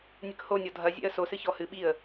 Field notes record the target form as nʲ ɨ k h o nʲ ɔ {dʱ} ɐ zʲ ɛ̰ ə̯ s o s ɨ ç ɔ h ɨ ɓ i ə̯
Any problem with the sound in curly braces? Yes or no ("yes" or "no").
no